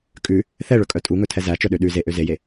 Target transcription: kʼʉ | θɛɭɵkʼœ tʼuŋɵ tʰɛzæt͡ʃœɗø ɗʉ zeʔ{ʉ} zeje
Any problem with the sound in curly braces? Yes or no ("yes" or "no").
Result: yes